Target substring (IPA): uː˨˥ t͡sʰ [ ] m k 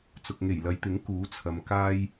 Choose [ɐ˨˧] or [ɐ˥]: ɐ˨˧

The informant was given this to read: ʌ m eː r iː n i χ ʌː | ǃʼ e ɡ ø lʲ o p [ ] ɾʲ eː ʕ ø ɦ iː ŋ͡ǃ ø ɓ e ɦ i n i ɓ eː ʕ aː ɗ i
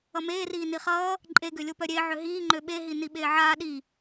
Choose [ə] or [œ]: œ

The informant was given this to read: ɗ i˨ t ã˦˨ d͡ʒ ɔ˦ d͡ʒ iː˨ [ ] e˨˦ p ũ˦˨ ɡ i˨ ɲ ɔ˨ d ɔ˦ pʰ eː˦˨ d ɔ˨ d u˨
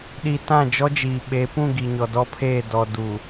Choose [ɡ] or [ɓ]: ɓ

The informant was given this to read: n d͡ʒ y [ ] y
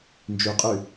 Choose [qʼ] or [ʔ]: qʼ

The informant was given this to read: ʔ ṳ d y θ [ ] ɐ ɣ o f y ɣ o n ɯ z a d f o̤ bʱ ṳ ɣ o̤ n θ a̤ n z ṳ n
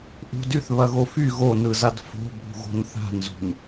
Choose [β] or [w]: β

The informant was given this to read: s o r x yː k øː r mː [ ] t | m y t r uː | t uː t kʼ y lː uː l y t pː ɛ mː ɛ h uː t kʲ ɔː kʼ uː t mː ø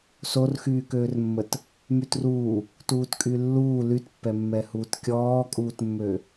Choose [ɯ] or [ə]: ə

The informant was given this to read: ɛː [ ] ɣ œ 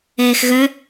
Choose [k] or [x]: x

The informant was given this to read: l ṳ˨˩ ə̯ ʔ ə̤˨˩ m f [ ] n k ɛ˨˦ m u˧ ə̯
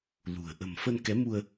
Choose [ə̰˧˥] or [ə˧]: ə˧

